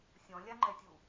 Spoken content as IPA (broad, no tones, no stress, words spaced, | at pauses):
sʲɔ̃lʲaŋ͡ǃɛtʲu